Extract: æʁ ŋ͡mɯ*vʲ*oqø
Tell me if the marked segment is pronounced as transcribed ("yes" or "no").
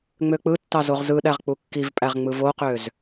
no